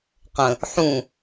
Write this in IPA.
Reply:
qə̃ | ħũ

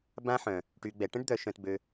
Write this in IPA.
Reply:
bã˧ħœ̃˨ | ʈy˨ɡ͡bɛ˨ ʈə̃˦ɖd̪œ˨ ʃœ̃˧tbø˧

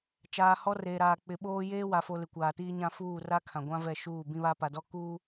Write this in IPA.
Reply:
t͡ʃaː˨hɔ˦reː˨ɾaː˨ k͡pɪ˨ɓoː˦ jeː˦wa˨fo˨lɪ˨ kʷaː˨tiː˦ɲã˦ fuː˦˨ra˦ kʰã˨ɡʷã˦vɛ˦˨ ʃuː˦˨ bĩ˦βa˦pa˨dɔ˦ kuː˦

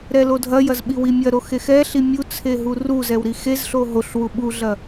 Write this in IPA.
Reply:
ɾɛlodʱɐjɐz ɓiwimʲɐɾo xexɛɬi mʲut͡sʰe ɦuruzɛw ɾixezɬo ɦoɬ wuɓuɮɐ

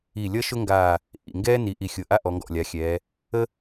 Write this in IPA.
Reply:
i˧˩lʲʌ˥ʃʊ˥ŋɡaː˧˩ | ʔḭ˧˩ ŋɡɛː˥ni˩˧ ʔi˧˩xʲʊ˧˩ ʔa˥ ʔɔ˩˧ŋɡɔ̰˧˩lʲa˩˧xʲɛː˩˧ | ə˥

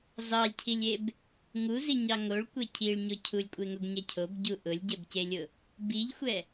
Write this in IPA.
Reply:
zɑlʲcʰilʲeb | ŋuziɲɑ ŋoɭkʷe cʰiɭɲo cʰulʲkʷʼeŋoɡɲɛ cʰobɟu ʔʊlʲɟɛbcelʲʊ | biʎxʷɛ

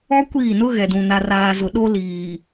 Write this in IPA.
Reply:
ɔ˦kʷiː˦˨nʊ˦ ɣɛ˨dũ˨ na˨raː˨zʊ˨ ɗo˦ liː˨

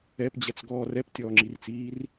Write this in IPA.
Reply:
ɛpd͡ʑɛt͡sɡɔː rɛptʲɔːŋ͡ǁirt͡siːr

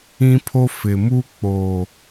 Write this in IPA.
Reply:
ĩ˦pʰo˦ fɪ˨mu˦ k͡po˨

